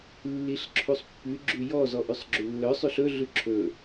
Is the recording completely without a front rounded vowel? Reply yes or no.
no